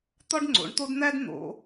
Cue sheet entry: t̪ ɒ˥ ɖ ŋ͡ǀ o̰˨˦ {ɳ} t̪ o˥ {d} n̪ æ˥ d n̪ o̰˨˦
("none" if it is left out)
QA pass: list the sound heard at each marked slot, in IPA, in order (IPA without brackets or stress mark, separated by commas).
ɳ, d